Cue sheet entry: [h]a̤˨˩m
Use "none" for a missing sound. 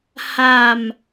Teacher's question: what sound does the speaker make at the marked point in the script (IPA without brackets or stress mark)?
h